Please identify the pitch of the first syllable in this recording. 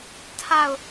falling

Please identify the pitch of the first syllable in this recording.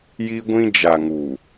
high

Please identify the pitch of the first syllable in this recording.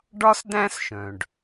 high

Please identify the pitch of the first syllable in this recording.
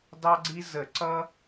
high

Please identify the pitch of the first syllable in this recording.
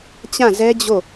falling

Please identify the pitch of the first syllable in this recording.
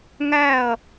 falling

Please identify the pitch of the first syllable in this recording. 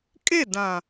falling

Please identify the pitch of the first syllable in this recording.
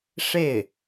falling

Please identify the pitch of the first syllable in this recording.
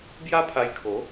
high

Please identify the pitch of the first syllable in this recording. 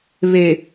low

